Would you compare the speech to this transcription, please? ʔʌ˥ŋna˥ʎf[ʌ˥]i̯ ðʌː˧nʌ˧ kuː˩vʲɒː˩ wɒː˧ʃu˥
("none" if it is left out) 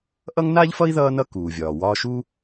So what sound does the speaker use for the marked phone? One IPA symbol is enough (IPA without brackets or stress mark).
ʌ˥